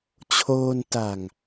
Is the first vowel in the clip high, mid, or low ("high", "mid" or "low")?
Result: mid